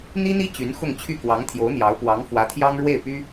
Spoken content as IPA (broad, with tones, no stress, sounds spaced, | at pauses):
n̪ i˥ n̪ i˥ t͡ɕ y˧˥ n x ʊ˥˧ ŋ t͡ɕʰ y˥˩ k w ɑ˧˥ ŋ t̪ʰ j o˧˥ ʊ̯ n̪ j ɑ˧˥ ʊ̯ p w ɑ˧˥ ŋ f w ä˧˥ t̪ʰ j ɑ˥ ŋ ɻ w e˥˩ ɪ̯ p y˥